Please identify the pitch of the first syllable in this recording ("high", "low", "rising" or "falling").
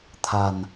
low